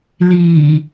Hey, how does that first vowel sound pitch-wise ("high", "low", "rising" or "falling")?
low